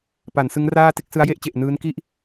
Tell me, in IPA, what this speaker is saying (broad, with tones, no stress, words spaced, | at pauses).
pa˩˦nsɯ˦˥ŋraː˥˩ te˥˩k̚sɯ˦˥a̯je˥˩ʔt͡ɕe˨˩ʔ nɯː˦˥n ki˥˩ʔ